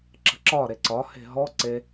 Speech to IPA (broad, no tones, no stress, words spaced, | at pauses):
ǁə̤ǁɒ ɾeǀɒ he̤ɦɔ ǀe